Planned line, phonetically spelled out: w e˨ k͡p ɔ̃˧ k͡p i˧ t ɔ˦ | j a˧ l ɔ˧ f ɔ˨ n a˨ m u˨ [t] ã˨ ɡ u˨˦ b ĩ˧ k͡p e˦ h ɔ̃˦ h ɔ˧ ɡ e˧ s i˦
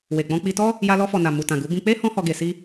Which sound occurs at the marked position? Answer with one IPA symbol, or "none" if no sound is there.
t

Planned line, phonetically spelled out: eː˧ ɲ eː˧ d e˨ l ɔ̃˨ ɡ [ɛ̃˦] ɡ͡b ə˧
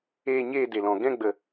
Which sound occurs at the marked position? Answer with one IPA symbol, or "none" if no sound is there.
ɛ̃˦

